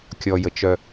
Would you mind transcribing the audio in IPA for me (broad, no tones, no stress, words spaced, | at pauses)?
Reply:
kʲɔjət͡ʃœ